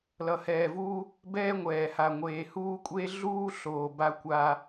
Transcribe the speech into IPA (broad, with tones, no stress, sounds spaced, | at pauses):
l ʌ˨ h ɛː˨ v uː˦ | b ɛː˦ ŋʷ ɛː˨ h a˨ ŋʷ eː˨ h uː˦ kʷʼ e˦ ɮ uː˦ ɬ oː˨ b a˦ kʷ aː˦